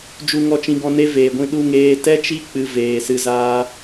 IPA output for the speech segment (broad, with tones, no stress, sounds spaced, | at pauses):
d͡ʒ u˨ ŋ ɔ˨ t͡ʃ ĩ˨ ɡ ɔ̃˧ n e˦ v eː˨ ɡʷ ĩ˧ ɗ u˧ ŋ eː˧ t ɛ˦ t͡ʃ i˦ k͡p ɨ˧ v eː˨ s ɨ˧ z aː˧